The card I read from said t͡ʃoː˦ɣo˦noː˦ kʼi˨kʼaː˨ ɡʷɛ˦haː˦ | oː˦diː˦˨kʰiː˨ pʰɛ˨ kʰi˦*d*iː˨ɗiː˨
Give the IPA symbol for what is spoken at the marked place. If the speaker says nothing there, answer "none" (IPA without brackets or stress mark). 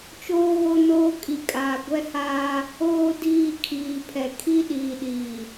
ɗ